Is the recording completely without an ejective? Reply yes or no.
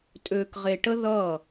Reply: no